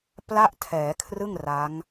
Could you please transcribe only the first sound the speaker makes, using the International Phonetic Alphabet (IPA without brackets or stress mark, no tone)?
p